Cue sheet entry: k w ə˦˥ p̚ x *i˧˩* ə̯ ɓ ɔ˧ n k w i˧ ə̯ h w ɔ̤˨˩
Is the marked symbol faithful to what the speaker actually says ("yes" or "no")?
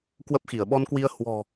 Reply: yes